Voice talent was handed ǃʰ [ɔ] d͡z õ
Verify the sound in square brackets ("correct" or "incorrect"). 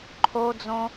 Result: incorrect